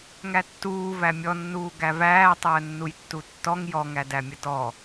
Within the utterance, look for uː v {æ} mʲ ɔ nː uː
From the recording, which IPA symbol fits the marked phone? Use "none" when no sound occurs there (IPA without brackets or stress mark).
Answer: æ